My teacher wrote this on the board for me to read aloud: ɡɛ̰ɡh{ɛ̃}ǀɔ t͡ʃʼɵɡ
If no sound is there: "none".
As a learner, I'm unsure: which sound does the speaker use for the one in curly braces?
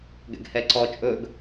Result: ɛ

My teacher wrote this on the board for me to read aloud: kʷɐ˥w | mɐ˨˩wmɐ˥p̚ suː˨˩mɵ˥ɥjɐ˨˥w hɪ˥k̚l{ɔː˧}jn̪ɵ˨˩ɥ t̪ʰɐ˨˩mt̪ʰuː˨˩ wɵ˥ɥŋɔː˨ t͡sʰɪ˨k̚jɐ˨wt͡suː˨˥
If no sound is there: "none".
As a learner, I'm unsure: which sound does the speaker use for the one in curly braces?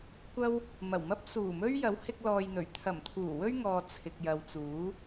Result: ɔː˧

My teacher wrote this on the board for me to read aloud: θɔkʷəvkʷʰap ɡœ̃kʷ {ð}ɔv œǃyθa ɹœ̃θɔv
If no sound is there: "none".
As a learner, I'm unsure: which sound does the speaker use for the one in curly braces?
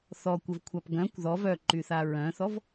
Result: ð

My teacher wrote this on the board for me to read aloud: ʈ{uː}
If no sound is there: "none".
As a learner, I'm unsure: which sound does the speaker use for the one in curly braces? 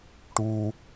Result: uː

